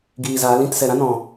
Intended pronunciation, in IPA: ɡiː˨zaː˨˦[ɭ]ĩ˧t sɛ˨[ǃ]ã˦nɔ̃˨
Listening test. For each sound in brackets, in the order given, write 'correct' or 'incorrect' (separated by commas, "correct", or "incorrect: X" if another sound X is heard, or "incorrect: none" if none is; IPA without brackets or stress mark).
incorrect: l, incorrect: ɾ